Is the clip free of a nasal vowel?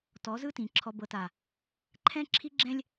no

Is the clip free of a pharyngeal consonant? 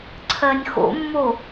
yes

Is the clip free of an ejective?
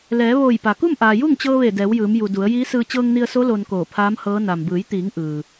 yes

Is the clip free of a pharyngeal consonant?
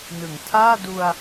yes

